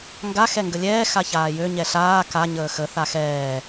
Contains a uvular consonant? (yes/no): no